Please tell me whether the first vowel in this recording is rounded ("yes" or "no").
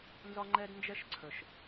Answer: yes